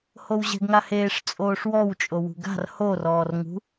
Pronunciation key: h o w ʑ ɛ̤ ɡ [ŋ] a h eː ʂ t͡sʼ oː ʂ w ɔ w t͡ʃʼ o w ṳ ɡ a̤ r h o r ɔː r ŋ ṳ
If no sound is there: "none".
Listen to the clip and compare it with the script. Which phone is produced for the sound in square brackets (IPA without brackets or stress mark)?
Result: ŋ